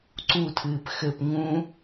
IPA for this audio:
ǀutʰɨːp xɘp ŋũ

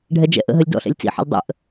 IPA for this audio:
ɖʱɛd͡ʒɛ̰ʔə̰ɦəlʲ dɔ̰ɬɛ̰lʲ t͡sḭħə̰lʲ dˤə̰ʔ

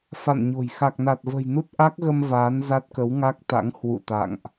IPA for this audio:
fa̰˧˨nɲo̤˨˩j xa˨˩k̚na˨˩t̚və̤˨˩jnu˦˥t̚ ʔa˦˥k̚ɣə˧m vaː˨˦n za˦˥t̚kə˨˦wŋa˦˥k̚ t̪a̰˧˥ŋ hwṵ˧˨t̪a̰˧˨ŋʔ

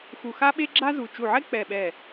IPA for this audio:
xu˧˩xa˥ɓe˥ ɡ͡ǁa˥zu˧˩ t͡ʃu˧˩ʕɛ˥ k͡pɛ˧˩ɓɛ˧˩

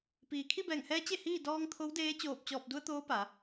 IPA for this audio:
piː˩kʰi˥˨bɛː˧˩ŋhɛː˧˥ t͡ɕe˥˨hiː˥˨ dɔː˧ŋ t̪ʰo˧˥wdeː˧˥ t͡ɕoː˧˩p̚t͡ɕɔː˧˩p̚du˧ə̯ t̪oː˧˥pa˩˧

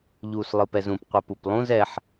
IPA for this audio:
ʎuːslˠɯpɛzũp qʷɘpuplˠũz ɛħ

